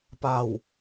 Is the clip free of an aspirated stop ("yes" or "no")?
yes